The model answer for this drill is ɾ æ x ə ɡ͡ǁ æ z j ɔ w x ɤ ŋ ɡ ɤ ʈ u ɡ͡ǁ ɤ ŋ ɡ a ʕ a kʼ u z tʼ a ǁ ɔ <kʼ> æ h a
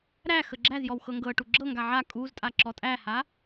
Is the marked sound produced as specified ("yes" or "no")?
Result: no